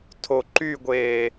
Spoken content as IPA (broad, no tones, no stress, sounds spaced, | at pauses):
tʰ o ǃ y ɡʷ eː